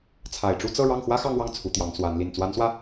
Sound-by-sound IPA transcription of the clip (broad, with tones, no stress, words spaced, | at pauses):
t͡sʰa˨˩ɪ̯ʈ͡ʂu˥˧t͡sɤ˥˧ ɻɑ˥˩ŋxwä˥xɑ˥˧ŋwɑ˥˩ŋ t͡sʰu˧˥t̪jɑ˧˥ŋ swa˧˥n li˨˩nt͡swa˧˥nswä˧